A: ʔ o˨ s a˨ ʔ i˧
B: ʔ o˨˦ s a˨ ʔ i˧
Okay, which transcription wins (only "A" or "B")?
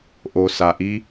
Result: A